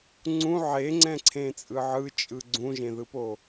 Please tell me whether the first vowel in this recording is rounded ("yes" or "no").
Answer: yes